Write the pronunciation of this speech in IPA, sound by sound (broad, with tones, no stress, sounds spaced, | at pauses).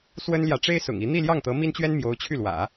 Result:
s w ə˥ n l j ä˨ ʈ͡ʂ e˥ ɪ̯ s ʊ̰˨˩ ŋ i˧˥ n̪ i˥˧ l j ɑ˥˩ ŋ t̪ ɤ˧˥ m i˥ n t͡ɕ ɥ ɛ˥ n m j o˧˥ ʊ̯ t͡ɕʰ y˥˩ l w ä̰˨˩˦